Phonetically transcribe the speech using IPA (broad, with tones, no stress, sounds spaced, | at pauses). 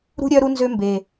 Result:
ɾ ṳ˥ ɾʲ œ˥ ɾ u˥ n z ø˥ m b e˨˩